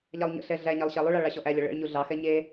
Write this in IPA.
ʎ ɑ lˠ ɲ ə̰ ɬ ɛ ɮ æ ɲ æ lˠ ɕ æ lˠ u ɭ ɑ ɭ ɑ ɕ ɔ ʔ æ lʲ ɔ ɭ ə̰ ɭ ɲ u ɮ ɑ x ɛ ɲ e

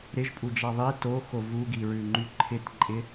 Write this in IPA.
ɾ ɪ ʒ pʼ u d͡ʒ a ðˤ i t o x o v u ɡ i ɹ ʉ ŋ͡ǃ y ǃʰ ɪ t ǃʼ ɪ

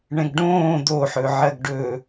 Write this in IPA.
ɳ ɛ̃ ɡ ɖ õː d̪ o ħ ɵ ʕ ɜ ɡ ɖ ɵː

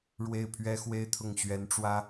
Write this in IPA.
ɻ w e˥˩ ɪ̯ pʰ ɥ ɛ˥ x w e˥˧ ɪ̯ t̪ʰ ʊ˥˩ ŋ ɕ ɥ ɛ˧˥ n ʈ͡ʂ w ä˥

